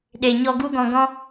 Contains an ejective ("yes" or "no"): no